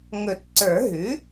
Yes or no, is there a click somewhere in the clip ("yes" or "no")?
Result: yes